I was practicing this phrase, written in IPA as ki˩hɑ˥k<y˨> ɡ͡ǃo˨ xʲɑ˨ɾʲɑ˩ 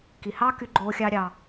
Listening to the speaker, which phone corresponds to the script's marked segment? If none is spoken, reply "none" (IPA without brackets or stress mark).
y˨